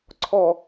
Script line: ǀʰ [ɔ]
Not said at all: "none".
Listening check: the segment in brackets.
ɔ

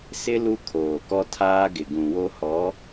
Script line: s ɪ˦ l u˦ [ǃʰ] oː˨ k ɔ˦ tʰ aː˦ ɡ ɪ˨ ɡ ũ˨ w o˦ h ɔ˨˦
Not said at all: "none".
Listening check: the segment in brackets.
kʰ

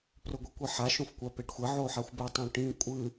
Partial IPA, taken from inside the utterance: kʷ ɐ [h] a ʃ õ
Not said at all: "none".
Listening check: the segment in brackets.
ħ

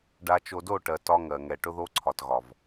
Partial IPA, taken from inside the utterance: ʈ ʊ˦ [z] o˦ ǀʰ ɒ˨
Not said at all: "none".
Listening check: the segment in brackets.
ð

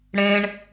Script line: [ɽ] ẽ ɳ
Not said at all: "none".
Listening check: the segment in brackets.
ɽ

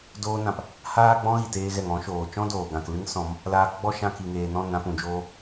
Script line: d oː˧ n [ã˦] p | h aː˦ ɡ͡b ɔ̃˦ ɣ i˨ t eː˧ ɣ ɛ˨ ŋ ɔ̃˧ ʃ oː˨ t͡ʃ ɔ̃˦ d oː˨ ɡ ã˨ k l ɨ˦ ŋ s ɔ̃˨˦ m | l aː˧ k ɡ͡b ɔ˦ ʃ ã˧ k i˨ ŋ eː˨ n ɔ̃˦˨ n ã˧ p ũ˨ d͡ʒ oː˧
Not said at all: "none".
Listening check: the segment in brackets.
ã˨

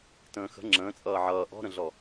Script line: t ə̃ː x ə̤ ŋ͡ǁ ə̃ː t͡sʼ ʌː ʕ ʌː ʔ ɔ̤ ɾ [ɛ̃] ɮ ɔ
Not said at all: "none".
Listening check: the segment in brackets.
ə̃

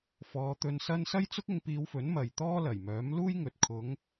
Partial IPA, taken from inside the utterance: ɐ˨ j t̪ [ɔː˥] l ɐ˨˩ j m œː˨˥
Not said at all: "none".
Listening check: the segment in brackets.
ɔː˥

